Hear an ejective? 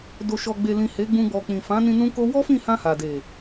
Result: no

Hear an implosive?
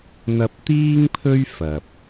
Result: no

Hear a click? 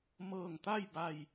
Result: no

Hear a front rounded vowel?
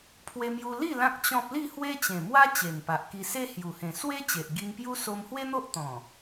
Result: no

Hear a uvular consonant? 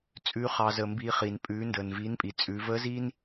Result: yes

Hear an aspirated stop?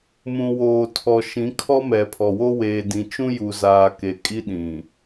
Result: yes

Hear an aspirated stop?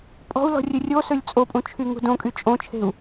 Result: yes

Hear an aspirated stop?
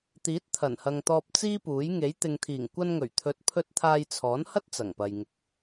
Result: yes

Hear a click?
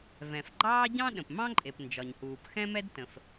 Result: yes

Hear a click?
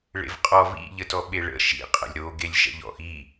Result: no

